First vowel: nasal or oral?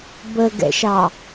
oral